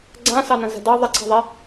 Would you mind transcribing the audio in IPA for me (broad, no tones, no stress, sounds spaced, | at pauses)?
ɡ͡ǀ ã s ɑ n ɐ̃ z ɛ̤ d ɑ ðˤ ɐ ǀʰ ɛ̤ ðˤ ɛ